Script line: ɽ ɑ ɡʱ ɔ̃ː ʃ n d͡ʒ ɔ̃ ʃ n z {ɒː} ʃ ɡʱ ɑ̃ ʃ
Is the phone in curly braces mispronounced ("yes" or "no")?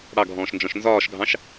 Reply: no